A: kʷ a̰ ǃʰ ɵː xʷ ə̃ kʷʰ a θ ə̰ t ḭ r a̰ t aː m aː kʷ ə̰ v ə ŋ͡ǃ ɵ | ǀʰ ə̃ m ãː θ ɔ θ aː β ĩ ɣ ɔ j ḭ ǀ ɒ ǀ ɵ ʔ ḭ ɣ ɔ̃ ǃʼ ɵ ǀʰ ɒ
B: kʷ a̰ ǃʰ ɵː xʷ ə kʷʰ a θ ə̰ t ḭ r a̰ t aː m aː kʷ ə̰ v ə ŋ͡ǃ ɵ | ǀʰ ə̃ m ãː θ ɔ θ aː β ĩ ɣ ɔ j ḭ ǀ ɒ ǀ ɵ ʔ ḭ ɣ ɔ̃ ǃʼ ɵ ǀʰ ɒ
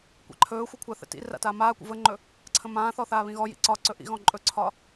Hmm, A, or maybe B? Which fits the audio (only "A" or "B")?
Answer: B